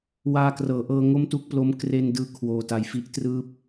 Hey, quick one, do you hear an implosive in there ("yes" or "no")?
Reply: no